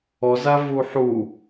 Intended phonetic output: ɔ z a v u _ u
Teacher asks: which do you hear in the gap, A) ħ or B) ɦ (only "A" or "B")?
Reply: A